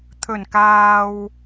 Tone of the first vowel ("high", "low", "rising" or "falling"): low